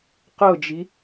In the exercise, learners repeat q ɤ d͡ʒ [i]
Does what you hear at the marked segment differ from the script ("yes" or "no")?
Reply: no